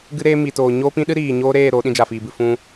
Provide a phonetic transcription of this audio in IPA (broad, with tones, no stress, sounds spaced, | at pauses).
ɡ ɨ˦ ɾ eː˦ m i˨ t oː˨ ɲ oː˦ p ĩ˦ ɗ ɨ˦ ɾ iː˨ ɲ oː˦ ɾ eː˦˨ ɾ o˨˦ ɗ ĩ˧ d͡ʒ a˨ f iː˨ b ɨ˨ f ũ˧